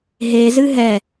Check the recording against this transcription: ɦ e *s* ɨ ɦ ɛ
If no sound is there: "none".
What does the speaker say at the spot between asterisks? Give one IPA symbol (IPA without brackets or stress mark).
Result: z